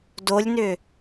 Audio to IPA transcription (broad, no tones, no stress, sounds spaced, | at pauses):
d o lʲ n ʏ